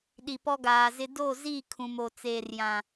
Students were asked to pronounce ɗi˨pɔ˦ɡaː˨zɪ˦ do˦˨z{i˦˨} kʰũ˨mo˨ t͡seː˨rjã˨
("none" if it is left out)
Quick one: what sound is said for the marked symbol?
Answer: i˦˨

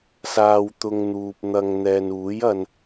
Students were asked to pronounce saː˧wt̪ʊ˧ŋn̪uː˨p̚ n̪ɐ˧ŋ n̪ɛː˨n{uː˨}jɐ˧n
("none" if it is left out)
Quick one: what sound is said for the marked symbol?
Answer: uː˨˥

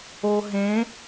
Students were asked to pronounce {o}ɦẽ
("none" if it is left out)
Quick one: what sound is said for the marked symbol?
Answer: o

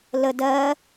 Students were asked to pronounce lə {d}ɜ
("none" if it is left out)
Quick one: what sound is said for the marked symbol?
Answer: d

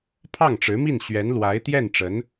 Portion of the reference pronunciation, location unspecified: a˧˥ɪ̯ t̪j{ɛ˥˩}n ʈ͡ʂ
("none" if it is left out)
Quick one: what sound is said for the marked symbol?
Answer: ɛ˥˩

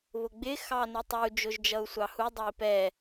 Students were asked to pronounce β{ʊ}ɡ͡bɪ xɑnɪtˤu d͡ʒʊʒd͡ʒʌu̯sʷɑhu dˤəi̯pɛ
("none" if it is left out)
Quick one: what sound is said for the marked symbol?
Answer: ʊ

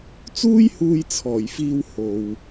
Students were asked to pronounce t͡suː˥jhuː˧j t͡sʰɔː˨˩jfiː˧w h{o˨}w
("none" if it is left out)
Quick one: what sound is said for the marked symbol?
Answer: o˨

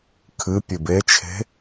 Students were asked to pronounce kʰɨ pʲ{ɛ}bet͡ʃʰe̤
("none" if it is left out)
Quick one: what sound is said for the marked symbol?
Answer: ɨ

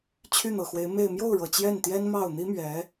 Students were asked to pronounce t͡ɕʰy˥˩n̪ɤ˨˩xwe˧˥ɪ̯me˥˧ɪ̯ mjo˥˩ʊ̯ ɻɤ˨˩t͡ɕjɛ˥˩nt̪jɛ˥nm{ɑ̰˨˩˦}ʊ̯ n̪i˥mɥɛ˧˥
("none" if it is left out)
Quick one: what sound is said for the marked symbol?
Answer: ɑ˥˩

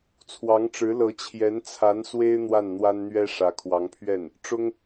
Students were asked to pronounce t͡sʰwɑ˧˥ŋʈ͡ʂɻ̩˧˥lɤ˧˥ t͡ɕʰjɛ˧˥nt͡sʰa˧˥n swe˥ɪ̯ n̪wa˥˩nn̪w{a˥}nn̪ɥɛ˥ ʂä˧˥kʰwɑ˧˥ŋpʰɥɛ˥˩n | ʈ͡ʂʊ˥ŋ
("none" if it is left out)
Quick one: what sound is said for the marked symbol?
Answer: a˥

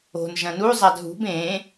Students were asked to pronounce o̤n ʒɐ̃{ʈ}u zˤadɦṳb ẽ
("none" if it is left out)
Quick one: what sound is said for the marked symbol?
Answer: n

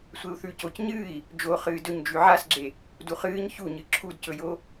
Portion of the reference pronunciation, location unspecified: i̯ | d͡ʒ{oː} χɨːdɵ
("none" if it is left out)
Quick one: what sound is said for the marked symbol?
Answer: o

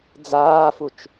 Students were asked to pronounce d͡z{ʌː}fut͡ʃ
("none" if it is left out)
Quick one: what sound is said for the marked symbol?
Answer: aː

